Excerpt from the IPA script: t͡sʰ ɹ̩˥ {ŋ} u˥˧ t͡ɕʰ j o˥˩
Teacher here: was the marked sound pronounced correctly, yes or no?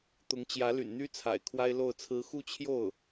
no